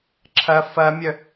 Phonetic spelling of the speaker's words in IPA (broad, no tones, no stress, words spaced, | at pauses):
ǁʰɐ fɐmʲœ